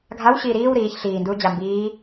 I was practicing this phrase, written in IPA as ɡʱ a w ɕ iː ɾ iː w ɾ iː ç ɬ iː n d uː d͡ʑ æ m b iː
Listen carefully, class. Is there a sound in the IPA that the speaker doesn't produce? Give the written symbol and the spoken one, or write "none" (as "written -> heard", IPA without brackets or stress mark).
æ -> a